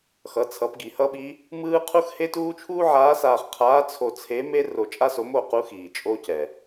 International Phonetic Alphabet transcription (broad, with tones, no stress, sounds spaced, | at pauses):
x ʌ˩˧ t͡sʰ ʌ˩˧ p ɡ i˩ h ʌ˥ ɓ i˧˥ | m ɯː˥ qʰ u˥ x h e˥ t uː˥ t͡ʃʰ uː˥ ʕ aː˧˥ s aː˧ χ qʰ aː˧˥ t͡sʰ o˧ t͡sʰ e˧˥ m e˥ r o˧ t͡ʃʼ a˥ s o˧˥ m o˧ q u˧˥ x iː˩ t͡ʃʼ o˥ c ɛ˩